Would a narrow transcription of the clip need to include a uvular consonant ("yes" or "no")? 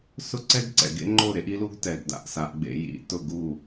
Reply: no